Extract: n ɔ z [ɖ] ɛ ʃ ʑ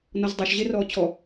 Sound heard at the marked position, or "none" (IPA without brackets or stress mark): dˤ